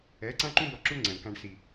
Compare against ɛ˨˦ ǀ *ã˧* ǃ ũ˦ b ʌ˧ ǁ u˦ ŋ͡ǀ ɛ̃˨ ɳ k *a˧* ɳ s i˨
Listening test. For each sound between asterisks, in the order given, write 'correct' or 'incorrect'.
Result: incorrect, incorrect

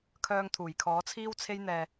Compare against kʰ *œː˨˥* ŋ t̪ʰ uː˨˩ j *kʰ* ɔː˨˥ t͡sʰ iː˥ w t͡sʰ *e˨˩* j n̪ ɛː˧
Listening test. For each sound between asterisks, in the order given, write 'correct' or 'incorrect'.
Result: incorrect, correct, incorrect

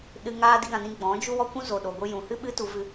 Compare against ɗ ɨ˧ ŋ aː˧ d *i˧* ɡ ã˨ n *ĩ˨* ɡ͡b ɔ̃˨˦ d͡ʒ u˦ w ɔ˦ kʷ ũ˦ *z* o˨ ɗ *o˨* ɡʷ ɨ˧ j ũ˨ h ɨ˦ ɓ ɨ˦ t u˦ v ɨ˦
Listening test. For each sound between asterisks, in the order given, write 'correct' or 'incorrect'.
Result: correct, incorrect, correct, correct

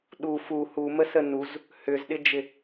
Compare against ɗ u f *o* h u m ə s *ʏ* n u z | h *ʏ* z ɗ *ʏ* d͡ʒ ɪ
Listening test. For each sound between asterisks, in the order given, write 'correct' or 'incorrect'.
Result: incorrect, incorrect, correct, incorrect

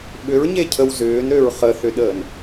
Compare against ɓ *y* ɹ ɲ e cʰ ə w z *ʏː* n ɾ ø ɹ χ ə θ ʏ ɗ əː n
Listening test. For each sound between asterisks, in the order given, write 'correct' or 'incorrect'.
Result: incorrect, correct

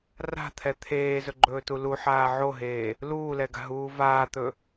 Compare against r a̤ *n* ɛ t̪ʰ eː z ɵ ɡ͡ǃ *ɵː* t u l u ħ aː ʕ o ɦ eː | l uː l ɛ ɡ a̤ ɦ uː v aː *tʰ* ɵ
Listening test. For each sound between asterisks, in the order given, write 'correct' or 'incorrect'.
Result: incorrect, correct, incorrect

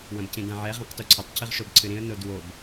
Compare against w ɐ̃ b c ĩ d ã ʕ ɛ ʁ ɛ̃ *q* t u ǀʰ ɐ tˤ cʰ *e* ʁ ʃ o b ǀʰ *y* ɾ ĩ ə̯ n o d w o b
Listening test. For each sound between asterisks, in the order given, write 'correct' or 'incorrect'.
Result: correct, incorrect, incorrect

